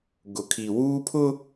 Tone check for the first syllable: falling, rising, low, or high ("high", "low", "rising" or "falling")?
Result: low